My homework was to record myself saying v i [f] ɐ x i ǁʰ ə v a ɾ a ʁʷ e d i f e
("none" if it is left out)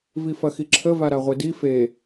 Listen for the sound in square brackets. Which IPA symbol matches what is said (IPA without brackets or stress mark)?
f